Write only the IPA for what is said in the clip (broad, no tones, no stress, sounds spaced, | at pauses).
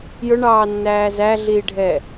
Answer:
j ʊ ɳ ɑː nː æː z æ ɮ iː ɖʱ ɛː